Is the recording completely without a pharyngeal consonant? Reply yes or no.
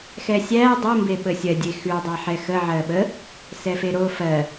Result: no